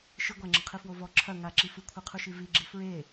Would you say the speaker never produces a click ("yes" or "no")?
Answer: no